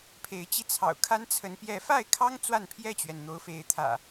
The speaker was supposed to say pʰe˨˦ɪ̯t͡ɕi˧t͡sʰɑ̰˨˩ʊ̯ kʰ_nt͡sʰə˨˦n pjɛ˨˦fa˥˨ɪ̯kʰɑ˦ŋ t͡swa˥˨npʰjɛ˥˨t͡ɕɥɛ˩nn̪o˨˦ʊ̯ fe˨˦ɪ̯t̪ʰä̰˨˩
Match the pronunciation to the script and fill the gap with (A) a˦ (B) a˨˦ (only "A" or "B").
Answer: A